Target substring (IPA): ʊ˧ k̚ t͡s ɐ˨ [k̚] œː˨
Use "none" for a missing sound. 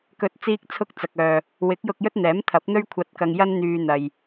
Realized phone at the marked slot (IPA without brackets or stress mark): k̚